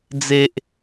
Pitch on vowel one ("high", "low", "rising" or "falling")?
high